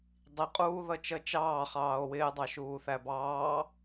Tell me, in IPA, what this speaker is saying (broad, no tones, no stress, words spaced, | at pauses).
dˤiqʼuːðʌt͡ʃʌ t͡ʃɑːχɑːo̯ wɪːdˤɑʃuːθæ bɑː